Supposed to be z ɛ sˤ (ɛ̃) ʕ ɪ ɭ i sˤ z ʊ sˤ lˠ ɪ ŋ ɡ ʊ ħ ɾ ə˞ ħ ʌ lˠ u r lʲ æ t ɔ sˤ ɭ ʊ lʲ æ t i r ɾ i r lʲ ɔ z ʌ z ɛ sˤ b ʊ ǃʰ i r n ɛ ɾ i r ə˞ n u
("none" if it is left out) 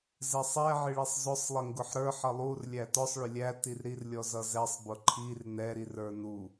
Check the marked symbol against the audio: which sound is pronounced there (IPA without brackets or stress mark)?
ɛ